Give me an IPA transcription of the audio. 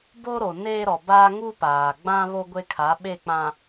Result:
b o˦ ɾ o˨ n eː˦ ɾ ɔ˨ b aː˦ ŋ u˦ p aː˨ ɡ͡b ã˦ β o˦ ɡʷ e˦ kʰ a˨˦ ɓ e˦˨ k͡p ã˨

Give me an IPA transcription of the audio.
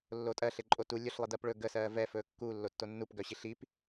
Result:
lː o tʼ ɜ ɬ e ǃʼ o t u lʲ ɵ ɬ lˠ i d ɜ p ɭ ɵ ɡ ə s ɜː v ɛ f ɵː kː u lː o tː o nː u p ɡ œ ɕ i ɬ i p

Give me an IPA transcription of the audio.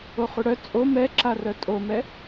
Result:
o χ u ɽ œ t͡sʼ o m ɛ ǁ a r œ tʼ o m ɛ

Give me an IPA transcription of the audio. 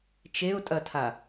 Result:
t͡ʃ e ʊ̯ tʼ ɐ tʰ a

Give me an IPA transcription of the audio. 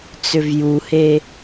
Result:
t͡s ʏ v j u h e

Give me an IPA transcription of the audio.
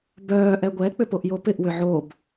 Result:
b œː ʔ ɛ ɡʷ ɛ k͡p ʏ p o ʔ j o p ɪ ʔ w ʏ ʕ o b

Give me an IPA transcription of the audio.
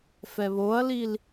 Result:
f ɛ β o ɐ̯ l i l

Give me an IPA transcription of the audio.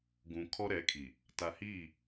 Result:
ɡ ũ˨ kʰ ɔ˦ ɾ ɛ˨˦ kʰ i˨ | t a˨ h iː˦˨

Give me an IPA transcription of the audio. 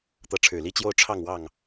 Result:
t̪ ɤ˨˦ ʈ͡ʂʰ ɻ̩˨˩ l i˦ t͡ɕ j o˦ ʊ̯ ʈ͡ʂʰ ɑ˥˨ ŋ w ɑ˥˨ ŋ

